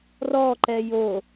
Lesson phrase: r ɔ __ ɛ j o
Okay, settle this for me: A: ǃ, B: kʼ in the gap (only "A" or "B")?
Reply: A